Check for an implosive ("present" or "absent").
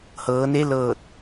absent